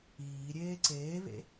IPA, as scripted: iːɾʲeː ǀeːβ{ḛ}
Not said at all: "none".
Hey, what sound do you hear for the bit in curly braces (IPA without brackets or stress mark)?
ḛ